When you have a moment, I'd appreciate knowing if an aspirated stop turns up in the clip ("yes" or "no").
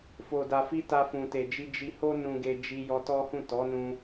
no